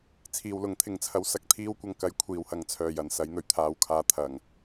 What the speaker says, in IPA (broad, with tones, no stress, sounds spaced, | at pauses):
t͡sʰ iː˨ w l ʊ˨˥ ŋ t̪ʰ ɪ˨ ŋ t͡sʰ ɐ˧ w s ɐ˧ k̚ t̪ʰ iː˧ w kʷ ɐ˨ ŋ k ɐ˨˧ j kʷʰ iː˨ w h ɐ˨˧ ŋ t͡sʰ œː˨˩ j ɐ˨˩ n s ɐ˨˧ j n̪ ɵ˨˩ ɥ t̪ʰ aː˨ w kʰ aː˨˧ t̪ʰ ɐ˨˩ ŋ